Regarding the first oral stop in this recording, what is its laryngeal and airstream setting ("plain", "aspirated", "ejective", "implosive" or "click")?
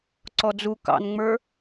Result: click